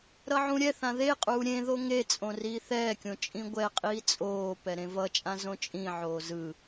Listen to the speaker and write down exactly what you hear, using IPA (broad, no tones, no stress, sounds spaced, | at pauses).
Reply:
ɾ ʌ ʕ ũ ɾʲ ɛ θ ã ð e qʼ uː ɾʲ ẽ ð o ŋ e t͡sʼ õ r iː θ ɛː kʲ õ t͡ʃʼ ĩ ɡʷ ɛ qʼ iː t͡sʼ oː p ɛ ɾ ẽ v ʌ t͡ʃʼ ã z õ t͡ʃʼ ĩ ʕ oː z ɯ